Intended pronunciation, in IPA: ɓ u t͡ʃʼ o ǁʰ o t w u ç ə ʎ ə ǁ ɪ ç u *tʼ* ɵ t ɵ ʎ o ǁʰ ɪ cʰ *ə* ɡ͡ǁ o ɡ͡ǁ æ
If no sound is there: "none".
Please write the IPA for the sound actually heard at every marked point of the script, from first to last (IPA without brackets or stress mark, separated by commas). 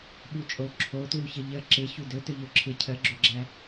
d, ə